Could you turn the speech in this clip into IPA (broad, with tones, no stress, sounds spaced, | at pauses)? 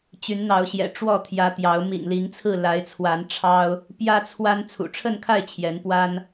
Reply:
t͡ɕ y˨˦ n n̪ ɑ˨˦ ʊ̯ ɕ j ɛ̰˨˩ ʈ͡ʂ w ɔ˥˨ t̪ʰ j ä˨˦ t̪ j ɑ˨˦ ʊ̯ m ḭ˨˩ ŋ l i˨˦ ŋ t͡sʰ ɹ̩˥˨ l a˨˦ ɪ̯ t͡sʰ w a˨˦ n ʈ͡ʂʰ ɑ˦ ʊ̯ | p j ä˦ t͡sʰ w a˦ n t͡sʰ ṵ˨˩ ʈ͡ʂʰ ə˥˨ n kʰ a˥˨ ɪ̯ t͡ɕʰ j ɛ˨˦ n p w a˦ n